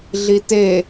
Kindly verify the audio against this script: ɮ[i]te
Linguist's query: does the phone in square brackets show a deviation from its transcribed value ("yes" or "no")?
no